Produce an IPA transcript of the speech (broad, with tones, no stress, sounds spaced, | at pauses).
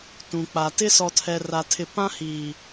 t ũ˨ k͡p a˨ t ɪ˦ s ɔ˨ tʰ ɛ˨ r a˨ tʰ ɪ˨ p ã˦ h iː˨